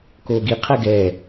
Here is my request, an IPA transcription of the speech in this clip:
koːɡi qʰɛɡɛ

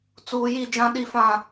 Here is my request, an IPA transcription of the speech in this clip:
t͡suː˨ji˦˨ d͡ʒã˦ɗi˦˨ fã˦˨

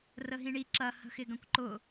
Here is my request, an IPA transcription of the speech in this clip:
rəɦĩɳi ǁɐ hə̤xɪɡɐ̃kʷǃʊ

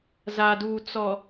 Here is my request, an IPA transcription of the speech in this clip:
za˨duː˨ t͡sɔ˨

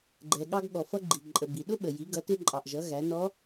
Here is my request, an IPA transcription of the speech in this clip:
ɡ͡ǃɛ˩ɠɑ˧ɡ ɠɔ˩fʌ˧ɡ͡ǃi˩ǃʼə˩ bi˩ɗʊ˥ɓə˩ ji˩˧ɡʌ˩˧tɪ˧ ǃʼɑ˩ʔʒʌ˩˧ ɣæ˩˧nɔ˧˥

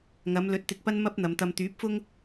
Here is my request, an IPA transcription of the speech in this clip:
ŋɐ˨˧m lɵ˨˥t̚t̪ɪ˨k̚ pɐ˥n mɐ˥p̚n̪ɐ˨˧mt̪ɐ˧m t̪yː˨˥p̚fʊ˥ŋ

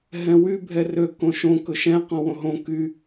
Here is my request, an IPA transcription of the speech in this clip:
ɦɛ̃wy bʱɛrø kõʃõ kɵʃɛ̃ qɔ̃wõɦõ ky

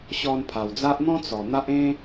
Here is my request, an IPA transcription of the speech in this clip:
ɕɔ˧npʰa˨˩wd͡za˦ʔ n̪ɔ̃˦ t͡sɔ˨˩n̪a˦ʔẽ˦

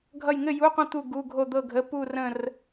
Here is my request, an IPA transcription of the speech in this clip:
ɡʱʌ˥˧j ŋɘ˥˧ju˧˥˧qʷə̃˥˧ t̪u˥˧ ɡu˧˥˧ɡʱo˥˧d̪ɤ˥˧ɡʱə˧˥˧ pu˥˧rə̃˥˧r

